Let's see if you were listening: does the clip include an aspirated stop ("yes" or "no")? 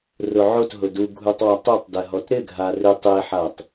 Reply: no